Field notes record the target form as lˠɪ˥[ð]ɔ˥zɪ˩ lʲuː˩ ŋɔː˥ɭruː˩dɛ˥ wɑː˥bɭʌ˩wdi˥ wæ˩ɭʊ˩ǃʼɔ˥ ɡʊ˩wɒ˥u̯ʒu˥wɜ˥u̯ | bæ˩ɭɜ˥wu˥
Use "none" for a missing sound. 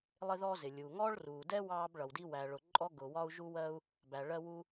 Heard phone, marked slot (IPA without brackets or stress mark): ð